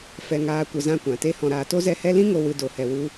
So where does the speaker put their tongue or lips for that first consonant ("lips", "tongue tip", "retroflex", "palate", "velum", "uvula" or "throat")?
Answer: lips